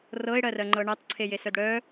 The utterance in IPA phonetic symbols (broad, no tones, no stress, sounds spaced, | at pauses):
r ɤ ɪ̯ ɽ ɜ r ɜ ŋ͡ǃ ɤ ɳ ɜ tˤ ǀʰ e j e s œ d ɽ œ